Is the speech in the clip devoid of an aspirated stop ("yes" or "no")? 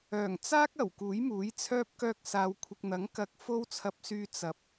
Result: no